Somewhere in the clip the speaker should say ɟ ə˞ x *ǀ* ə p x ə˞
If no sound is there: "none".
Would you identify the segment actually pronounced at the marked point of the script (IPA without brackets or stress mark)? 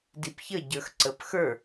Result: ǀ